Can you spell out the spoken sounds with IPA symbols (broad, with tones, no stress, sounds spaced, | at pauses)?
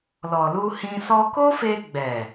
l ɔ˨ l u˧ h ĩ˧ s ɔ˧ k o˦ f e˧ ɡ͡b ɛ˨